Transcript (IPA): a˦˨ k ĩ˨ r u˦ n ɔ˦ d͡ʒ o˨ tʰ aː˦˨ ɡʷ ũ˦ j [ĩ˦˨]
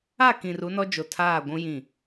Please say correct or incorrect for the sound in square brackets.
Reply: correct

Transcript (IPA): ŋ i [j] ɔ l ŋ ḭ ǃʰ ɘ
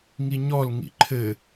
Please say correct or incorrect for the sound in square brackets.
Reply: incorrect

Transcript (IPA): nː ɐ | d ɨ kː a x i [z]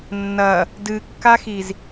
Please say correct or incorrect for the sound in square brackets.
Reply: correct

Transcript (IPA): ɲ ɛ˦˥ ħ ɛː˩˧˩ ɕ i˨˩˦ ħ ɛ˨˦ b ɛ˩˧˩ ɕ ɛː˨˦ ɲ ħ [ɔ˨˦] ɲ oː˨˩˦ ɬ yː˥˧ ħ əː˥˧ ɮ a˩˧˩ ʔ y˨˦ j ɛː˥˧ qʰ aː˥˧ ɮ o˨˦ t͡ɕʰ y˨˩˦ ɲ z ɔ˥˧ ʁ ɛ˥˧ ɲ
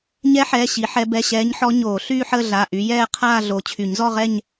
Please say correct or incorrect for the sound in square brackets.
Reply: correct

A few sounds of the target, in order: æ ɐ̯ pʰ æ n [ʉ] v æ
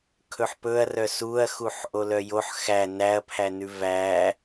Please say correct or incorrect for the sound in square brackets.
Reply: correct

